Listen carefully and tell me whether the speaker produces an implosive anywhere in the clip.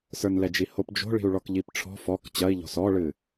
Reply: no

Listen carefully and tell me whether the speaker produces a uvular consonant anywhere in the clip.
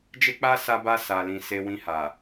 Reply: no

